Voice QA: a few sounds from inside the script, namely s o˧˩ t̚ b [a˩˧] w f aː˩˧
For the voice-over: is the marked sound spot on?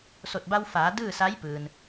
no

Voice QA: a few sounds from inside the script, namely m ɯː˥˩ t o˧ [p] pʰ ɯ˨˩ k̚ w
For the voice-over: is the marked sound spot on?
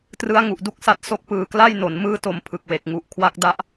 no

